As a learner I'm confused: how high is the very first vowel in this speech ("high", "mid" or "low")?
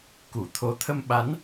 high